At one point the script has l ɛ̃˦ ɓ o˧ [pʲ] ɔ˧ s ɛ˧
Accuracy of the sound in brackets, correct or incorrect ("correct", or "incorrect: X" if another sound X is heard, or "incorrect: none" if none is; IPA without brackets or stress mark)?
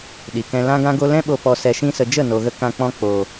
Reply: incorrect: p